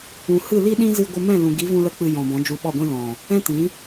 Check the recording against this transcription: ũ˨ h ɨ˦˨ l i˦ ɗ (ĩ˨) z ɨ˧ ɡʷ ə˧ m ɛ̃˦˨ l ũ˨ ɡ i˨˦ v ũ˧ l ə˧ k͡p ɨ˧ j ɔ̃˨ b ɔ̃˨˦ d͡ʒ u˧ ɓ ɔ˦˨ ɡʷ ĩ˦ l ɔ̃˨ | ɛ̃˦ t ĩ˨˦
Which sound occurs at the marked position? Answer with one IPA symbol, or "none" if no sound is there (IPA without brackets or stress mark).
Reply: ĩ˦